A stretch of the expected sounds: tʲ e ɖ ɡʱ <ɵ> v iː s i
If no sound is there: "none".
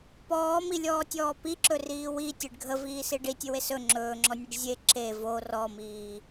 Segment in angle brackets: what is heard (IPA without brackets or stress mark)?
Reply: ə